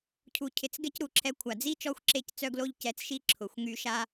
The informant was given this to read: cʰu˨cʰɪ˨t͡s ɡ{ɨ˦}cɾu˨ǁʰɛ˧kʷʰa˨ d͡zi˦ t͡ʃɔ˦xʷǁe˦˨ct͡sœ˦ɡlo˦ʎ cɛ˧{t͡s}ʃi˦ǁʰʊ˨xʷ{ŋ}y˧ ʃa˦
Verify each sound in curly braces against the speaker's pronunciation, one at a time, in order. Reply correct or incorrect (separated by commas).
incorrect, correct, correct